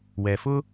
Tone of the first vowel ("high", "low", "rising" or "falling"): low